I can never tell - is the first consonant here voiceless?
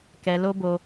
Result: yes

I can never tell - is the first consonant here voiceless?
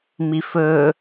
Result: no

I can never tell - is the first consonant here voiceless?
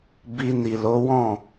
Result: no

